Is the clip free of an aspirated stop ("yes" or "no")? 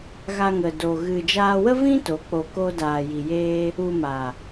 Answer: yes